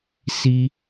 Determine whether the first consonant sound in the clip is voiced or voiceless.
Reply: voiceless